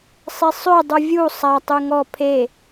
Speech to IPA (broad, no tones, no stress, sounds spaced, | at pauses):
sˤ e sˤ ø dˤ u vʲ u sˤ a tˤ y ŋ ɔ pʰ e